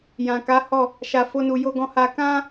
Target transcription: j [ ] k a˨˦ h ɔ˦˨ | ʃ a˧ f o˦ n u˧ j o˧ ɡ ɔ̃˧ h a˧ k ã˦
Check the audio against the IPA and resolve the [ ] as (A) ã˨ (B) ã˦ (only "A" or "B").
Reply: A